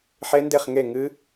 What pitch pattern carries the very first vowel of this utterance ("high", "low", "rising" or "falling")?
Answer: rising